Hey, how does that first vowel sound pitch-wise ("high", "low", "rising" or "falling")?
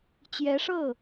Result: rising